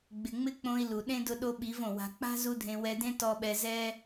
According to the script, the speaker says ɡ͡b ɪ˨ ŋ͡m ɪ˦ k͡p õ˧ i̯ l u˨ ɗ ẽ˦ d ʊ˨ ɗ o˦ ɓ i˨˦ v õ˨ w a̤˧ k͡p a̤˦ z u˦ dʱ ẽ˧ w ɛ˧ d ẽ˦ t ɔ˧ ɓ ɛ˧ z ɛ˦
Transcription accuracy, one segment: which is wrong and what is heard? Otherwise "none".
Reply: ʊ˨ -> ʊ˧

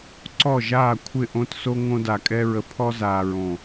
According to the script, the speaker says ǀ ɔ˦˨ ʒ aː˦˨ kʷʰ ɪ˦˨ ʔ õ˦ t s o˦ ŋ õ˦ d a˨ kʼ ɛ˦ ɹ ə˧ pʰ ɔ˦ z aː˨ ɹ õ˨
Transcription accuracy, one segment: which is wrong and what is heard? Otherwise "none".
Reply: none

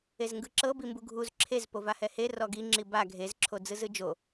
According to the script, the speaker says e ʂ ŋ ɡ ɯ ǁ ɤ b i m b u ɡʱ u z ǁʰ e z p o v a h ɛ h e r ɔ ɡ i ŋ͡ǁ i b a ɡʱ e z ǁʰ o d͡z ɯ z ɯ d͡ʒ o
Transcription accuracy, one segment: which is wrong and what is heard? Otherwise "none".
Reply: ʂ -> z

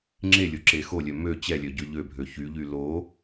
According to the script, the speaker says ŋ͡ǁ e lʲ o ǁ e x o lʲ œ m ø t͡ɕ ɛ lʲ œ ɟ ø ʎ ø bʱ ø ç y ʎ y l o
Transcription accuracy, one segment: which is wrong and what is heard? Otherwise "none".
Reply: none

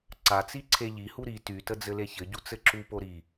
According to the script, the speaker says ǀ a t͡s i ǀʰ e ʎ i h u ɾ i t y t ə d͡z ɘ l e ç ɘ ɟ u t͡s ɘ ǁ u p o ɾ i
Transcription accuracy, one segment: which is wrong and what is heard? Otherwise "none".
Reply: none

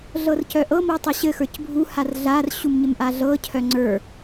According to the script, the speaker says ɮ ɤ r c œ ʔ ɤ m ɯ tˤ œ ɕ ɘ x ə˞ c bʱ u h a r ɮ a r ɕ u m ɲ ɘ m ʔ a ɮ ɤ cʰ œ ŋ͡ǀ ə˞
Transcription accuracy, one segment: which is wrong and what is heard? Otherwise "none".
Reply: ɯ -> ɤ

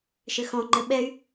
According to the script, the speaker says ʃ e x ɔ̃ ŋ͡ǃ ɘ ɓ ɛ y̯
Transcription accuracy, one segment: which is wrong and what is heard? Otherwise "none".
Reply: e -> ɘ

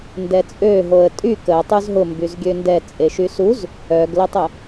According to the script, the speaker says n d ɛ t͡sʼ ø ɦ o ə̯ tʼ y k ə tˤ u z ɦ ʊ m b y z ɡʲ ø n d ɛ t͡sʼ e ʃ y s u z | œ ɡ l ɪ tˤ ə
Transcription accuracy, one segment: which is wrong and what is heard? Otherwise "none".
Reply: none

